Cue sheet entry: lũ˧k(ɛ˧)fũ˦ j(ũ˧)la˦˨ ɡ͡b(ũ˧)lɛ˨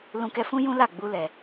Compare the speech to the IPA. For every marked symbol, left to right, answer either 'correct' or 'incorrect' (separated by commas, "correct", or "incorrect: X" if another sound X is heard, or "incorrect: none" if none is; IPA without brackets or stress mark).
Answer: correct, incorrect: ũ˦, incorrect: u˧